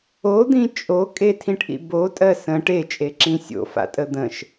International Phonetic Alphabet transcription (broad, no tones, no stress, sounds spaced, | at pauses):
o d̪ ĩ t͡ʃʼ o kʼ e tʰ ĩ ʈ ʔ ḭ b o tʼ ɜ s ə̃ ʈ e t͡ʃʼ e ǁ ĩ sʲ o̰ f a̰ tʼ ə d̪ ə̃ ʃ